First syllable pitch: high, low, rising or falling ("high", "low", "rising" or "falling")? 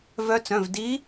rising